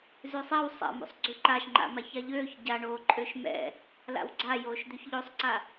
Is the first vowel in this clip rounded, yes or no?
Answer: yes